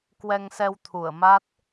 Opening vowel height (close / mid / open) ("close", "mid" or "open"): mid